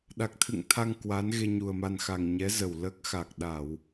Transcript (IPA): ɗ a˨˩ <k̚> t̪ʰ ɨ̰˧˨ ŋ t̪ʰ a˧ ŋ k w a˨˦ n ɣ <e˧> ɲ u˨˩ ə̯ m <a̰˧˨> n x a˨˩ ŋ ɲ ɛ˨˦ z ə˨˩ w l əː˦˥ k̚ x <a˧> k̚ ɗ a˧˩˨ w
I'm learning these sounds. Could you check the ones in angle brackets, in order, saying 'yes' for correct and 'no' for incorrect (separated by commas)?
yes, yes, no, no